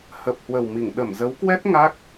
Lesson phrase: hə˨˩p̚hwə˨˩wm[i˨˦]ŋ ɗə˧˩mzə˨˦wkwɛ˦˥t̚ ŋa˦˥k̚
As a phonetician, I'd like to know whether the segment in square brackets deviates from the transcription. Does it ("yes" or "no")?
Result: yes